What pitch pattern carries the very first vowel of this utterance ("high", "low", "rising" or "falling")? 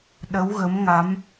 rising